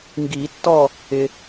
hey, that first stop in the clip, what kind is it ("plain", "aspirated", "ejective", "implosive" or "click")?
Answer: plain